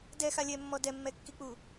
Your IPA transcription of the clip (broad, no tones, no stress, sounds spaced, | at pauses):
d ɛ x a lʲ ɛ mː ɔ d ɛ mː ɛ kː i k͡p u